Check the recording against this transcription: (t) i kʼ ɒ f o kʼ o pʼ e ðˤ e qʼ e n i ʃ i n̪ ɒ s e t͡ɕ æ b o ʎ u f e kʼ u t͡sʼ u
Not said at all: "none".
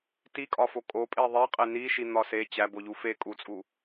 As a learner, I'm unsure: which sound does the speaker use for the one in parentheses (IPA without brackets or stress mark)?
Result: t